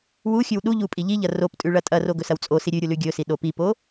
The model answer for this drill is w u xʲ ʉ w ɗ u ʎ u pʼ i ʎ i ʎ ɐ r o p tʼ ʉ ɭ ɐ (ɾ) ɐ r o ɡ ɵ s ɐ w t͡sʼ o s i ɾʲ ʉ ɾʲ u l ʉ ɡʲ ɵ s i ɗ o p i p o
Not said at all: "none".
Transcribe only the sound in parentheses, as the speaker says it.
tʼ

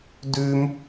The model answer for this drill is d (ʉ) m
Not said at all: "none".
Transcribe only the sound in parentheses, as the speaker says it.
ʉ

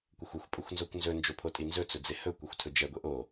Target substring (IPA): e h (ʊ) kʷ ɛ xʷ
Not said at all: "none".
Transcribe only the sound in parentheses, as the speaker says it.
ɵ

